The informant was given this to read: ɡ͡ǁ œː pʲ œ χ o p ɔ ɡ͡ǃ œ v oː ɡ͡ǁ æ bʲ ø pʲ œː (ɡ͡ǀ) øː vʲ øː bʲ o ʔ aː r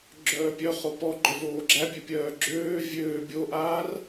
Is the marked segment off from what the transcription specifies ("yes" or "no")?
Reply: yes